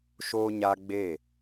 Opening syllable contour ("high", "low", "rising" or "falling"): high